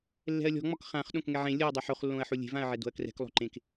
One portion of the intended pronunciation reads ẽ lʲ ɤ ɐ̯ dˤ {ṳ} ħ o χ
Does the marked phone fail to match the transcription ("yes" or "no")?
yes